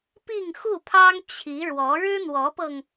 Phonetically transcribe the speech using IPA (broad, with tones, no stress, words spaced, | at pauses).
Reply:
pi˥˧ŋxu˥˩pʰɑ˥ŋ t͡ɕʰi˧˥ɻwɔ˧˥ ɻɻ̩˥n̪wɔ˧˥pɤ˧ŋ